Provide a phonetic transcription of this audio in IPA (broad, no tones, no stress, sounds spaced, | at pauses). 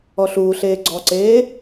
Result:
ɔ ɬ uː ɬ eː ɡ͡ǀ ɔ ǀ eː